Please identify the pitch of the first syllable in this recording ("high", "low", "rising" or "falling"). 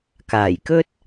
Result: low